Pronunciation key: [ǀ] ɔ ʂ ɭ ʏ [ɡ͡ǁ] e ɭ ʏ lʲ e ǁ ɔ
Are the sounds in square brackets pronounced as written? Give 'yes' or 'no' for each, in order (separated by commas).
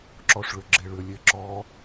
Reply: no, yes